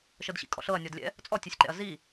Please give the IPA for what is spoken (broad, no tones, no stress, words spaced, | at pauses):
ʃɤdɕḭkʼɔ̰ɬɤɐ̯ nʲɔdlʲɛ̰ | t͡sʼɔtʲɛsʲǃɛ̰ɐ̯ zi